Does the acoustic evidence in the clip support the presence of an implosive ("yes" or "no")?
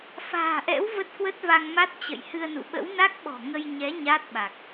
yes